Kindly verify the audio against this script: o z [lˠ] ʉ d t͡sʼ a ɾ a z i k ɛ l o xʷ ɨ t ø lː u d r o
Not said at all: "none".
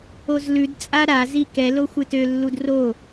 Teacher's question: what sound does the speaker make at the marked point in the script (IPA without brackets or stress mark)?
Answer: l